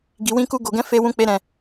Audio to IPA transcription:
ɡ i˧ w ĩ˦ k u˦ ɡ o˧ ɡ ɛ̃˦ f e˦ w ũ˦ k͡p e˦ ɾ ɛ̃˧

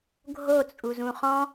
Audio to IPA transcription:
ɡʱ o t͡sʼ u z ũ χ ɔ̃

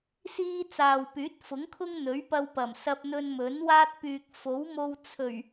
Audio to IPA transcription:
s iː˥ t͡s aː˨ w p yː˨˥ t̚ f ʊ˨˥ ŋ kʰ ʊ˥ ŋ n̪ ɵ˨˥ ɥ p ɐ˧ w p ɐ˨˩ m s ɐ˧ p̚ n̪ ɵ˧ n m ɵ˨˥ n w aː˥ t̚ p yː˨ k̚ f o˨˥ w m o˧ w t͡sʰ ɵ˨˩ ɥ

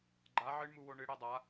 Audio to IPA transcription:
ɡ͡ǃ a ʕ ɨ ɳ m u w o ɳ ɨ ɽ e dˤ a

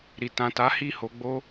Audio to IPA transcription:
ɾ i˨ t ã˨ t a˨˦ h i˦˨ h o˧ ɡ͡b o˦

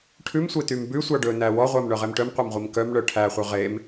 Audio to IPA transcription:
ʈʰ ʉ m sʷ e t y m b ʉ sʷ ɑ ɖ ɵ n æ w ɔ ʁʷ æ m ɳ œ ʁ e m ʈ œ m qʷ æ m ʁʷ i m k œ m ɳ œ ʈʰ æ χʷ œ ʁ e m

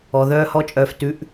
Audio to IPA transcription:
ɔ˨ ð œː˦ h ɔ˦ t͡ʃʼ œː˧ f t ʉ˨˦ ʔ

